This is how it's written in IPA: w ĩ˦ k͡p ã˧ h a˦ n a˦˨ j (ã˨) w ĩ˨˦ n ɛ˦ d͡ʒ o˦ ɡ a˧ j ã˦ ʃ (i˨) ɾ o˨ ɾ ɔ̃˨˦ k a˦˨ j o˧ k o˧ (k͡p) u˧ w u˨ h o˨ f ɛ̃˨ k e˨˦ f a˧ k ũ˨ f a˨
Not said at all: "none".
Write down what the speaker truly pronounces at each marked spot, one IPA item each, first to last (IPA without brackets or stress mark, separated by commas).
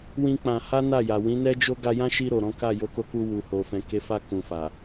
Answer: a˨, i˧, k